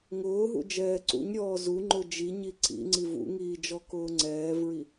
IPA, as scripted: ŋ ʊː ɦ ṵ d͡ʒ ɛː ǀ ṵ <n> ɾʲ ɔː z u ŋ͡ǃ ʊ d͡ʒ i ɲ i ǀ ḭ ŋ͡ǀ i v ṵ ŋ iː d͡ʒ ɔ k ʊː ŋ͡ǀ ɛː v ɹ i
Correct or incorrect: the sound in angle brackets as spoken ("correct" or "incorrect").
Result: incorrect